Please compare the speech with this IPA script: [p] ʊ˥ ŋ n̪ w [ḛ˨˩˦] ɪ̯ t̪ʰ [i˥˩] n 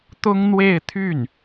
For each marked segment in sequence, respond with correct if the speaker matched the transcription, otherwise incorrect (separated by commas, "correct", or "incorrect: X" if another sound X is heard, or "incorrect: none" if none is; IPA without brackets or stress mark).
incorrect: t̪, incorrect: e˥˧, incorrect: y˥˩